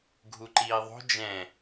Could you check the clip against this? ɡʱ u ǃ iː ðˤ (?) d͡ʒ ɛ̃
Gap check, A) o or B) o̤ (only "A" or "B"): B